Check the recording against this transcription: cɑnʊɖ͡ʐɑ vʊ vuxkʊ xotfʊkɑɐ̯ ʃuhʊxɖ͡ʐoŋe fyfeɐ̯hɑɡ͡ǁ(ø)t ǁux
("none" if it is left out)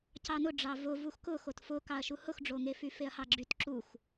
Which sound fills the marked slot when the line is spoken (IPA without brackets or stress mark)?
y